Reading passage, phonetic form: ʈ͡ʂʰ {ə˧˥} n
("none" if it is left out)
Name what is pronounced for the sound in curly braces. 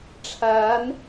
a˧˥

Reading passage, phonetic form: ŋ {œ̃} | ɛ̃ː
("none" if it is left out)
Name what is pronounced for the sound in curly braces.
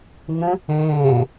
ə̃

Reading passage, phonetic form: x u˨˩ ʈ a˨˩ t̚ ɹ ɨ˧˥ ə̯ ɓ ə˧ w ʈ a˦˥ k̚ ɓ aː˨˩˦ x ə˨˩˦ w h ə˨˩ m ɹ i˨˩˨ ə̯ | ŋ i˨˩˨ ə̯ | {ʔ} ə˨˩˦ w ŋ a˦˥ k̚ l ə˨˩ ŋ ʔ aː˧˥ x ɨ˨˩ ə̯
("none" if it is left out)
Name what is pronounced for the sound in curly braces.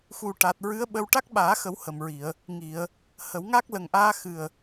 h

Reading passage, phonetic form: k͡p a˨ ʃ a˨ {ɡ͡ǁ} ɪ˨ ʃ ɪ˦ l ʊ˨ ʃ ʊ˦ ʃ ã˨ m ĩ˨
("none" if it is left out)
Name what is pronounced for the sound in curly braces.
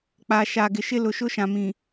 ɡ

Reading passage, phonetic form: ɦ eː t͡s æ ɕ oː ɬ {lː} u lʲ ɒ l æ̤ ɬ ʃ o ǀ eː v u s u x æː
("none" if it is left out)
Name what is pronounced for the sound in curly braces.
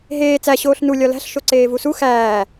n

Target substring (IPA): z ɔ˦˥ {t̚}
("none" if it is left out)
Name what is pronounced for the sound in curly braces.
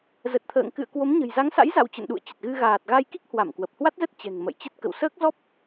p̚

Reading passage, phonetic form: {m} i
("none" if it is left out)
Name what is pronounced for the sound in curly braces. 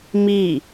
m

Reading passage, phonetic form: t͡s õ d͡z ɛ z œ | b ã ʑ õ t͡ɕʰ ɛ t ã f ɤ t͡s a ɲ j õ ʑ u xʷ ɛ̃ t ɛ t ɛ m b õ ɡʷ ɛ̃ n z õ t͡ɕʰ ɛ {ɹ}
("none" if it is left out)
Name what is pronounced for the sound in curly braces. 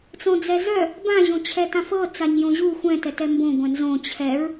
ɹ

